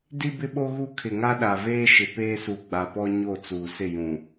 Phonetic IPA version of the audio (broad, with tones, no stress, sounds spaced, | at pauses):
d i˦ b ɪ˦ ɓ o˦ ɣ u˦ kʰ ɪ˨ ŋ a˦ ɗ a˨ v eː˦ ʃ ɪ˨ p eː˦ s u˨ ɡ͡b a˨ p ɔ˦ ɲ o˦˨ t͡s uː˨ s ɪ˦˨ j ũ˨